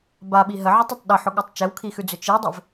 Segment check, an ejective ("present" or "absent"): absent